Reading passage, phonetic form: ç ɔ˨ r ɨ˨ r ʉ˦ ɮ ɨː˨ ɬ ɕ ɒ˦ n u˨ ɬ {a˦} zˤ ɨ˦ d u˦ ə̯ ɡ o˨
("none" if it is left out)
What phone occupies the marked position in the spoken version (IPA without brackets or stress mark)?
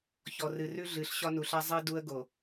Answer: a˦